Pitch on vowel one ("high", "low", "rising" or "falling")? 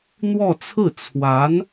falling